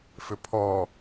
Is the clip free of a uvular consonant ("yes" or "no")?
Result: yes